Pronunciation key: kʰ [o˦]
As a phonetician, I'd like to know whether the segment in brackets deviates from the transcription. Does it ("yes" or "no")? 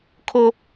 no